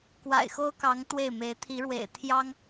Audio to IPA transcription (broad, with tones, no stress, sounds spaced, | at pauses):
k w a̰˨˩ ɪ̯ x o˥ ʊ̯ k ɑ˧˥ ŋ t̪ w e˥˩ ɪ̯ m e˧˥ ɪ̯ t̪ʰ i˧˥ ɻ w ḛ˨˩ ɪ̯ t̪ʰ j ɑ˥ ŋ